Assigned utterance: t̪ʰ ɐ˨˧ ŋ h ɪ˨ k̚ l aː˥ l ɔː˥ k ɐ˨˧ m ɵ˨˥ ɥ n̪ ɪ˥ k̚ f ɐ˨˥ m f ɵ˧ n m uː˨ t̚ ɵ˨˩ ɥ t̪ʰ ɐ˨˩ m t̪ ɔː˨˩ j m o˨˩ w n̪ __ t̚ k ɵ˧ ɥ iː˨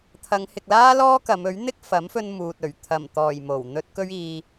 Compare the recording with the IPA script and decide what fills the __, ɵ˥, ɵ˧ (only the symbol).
ɵ˧